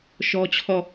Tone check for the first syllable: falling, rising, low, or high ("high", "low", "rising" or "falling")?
high